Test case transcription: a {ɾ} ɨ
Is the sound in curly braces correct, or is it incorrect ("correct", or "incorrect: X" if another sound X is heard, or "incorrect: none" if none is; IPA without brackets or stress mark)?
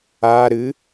correct